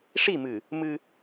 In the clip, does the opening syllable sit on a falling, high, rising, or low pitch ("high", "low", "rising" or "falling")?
falling